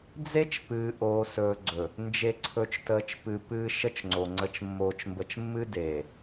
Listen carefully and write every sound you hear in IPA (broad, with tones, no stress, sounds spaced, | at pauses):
d͡z e˦ t͡ʃ p ɨː˨ ʔ oː˨ s ɵː˨ ɡ͡ǀ ɵ˨ | n d͡ʒ e˨ ǀʰ ɵ˨ t͡ʃ t əː˨ t͡ʃ p ɨ˨ p ɨː˨ ʃ ə˦ t͡ʃ ŋ͡ǀ o˨ ŋ͡ǀ ə˨ t͡ʃ mː oː˨ t͡ʃ m b ə˨ t͡ʃ mː ɨ˦ d eː˨